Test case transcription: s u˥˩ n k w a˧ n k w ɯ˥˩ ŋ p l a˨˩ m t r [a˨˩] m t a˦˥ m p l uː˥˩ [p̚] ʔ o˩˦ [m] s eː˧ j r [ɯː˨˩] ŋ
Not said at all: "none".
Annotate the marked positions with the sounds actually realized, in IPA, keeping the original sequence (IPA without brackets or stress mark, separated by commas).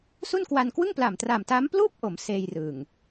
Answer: a˨˩, p̚, m, ɯː˨˩